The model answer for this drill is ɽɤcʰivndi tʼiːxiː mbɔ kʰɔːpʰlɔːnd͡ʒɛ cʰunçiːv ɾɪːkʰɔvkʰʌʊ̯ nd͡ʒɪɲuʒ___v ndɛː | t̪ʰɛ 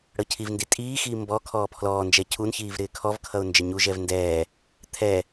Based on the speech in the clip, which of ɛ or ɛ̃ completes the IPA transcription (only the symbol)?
ɛ